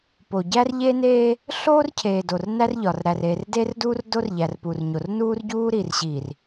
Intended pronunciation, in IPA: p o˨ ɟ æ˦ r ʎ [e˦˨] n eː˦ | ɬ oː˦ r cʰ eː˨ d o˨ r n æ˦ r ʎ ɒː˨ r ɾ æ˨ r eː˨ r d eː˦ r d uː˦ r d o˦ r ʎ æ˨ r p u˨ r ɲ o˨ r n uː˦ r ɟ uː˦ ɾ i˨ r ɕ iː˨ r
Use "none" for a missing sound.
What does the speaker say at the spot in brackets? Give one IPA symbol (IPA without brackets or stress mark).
e˦